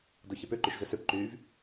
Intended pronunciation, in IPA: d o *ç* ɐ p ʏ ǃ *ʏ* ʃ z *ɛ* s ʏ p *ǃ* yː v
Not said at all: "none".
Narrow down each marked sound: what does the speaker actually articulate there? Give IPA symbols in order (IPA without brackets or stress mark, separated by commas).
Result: ç, y, ʏ, ǃ